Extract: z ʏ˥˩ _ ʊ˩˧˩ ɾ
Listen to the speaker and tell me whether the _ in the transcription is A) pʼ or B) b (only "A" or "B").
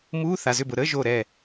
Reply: B